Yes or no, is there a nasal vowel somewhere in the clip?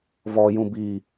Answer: yes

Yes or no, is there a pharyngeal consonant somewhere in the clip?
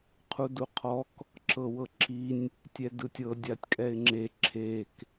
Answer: no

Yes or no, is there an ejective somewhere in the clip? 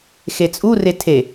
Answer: yes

